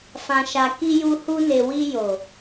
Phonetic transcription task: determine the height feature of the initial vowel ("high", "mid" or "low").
low